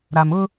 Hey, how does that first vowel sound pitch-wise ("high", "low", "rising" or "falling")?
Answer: low